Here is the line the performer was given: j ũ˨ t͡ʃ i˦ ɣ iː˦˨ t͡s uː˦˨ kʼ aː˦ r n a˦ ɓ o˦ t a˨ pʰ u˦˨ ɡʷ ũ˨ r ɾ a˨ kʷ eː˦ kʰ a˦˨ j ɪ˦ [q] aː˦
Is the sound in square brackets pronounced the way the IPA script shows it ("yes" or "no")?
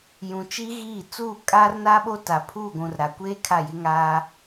no